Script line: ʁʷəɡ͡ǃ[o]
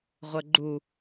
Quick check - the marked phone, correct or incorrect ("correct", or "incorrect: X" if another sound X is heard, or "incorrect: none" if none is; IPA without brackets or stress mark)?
incorrect: u